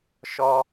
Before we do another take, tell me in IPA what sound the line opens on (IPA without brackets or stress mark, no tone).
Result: ʃ